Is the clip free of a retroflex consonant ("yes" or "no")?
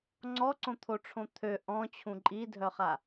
no